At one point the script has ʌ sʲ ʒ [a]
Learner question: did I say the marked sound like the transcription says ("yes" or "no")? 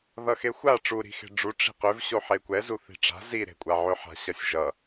no